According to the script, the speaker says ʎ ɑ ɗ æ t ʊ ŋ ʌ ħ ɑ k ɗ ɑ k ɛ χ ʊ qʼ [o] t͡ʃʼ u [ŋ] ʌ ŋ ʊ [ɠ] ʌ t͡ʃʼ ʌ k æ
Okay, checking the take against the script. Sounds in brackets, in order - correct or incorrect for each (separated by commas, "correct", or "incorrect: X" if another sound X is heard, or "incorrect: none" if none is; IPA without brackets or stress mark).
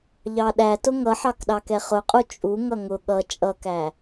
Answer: incorrect: u, correct, correct